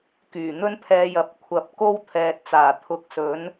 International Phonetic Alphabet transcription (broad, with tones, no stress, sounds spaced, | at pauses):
k yː˨˩ n̪ ɵ˥ n pʰ ɛː˨˧ j ɐ˨ p̚ kʷʰ ɐ˨˥ p̚ k o˧ w t̪ʰ ɛː˨ t̚ t͡s aː˨˩ t̪ʰ ʊ˨˥ k̚ s ɵ˨˥ n